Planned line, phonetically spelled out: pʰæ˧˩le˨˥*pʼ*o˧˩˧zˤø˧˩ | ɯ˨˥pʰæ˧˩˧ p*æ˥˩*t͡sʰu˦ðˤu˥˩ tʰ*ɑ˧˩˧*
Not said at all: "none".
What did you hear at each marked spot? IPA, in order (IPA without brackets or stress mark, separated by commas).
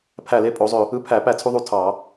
pʼ, æ˥˩, ɑ˧˩˧